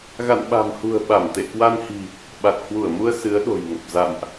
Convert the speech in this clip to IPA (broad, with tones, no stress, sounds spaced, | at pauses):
ɣ a̰˧˨ n ɓ a̤˨˩ m h ṳ˨˩ ə̯ ɓ a˧˩ m t̪ ḛ˧˨ k w a˧ n h i̤˨˩ | ɓ a˨˩ t̚ h w u˧˩ ə̯ m u˧ ə̯ s ɨ˨˦ ə̯ ɗ o̤˨˩ j ŋ ə˨˩ p̚ z a̰˧˨ m ʔ